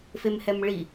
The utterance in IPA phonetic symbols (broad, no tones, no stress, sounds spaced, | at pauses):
f e m h ɛ m ɭ i